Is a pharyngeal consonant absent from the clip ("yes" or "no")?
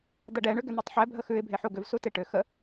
no